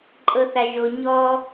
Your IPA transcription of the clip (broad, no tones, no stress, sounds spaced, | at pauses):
ǃʼ ɤ θ a ʒ o ɲ ɔ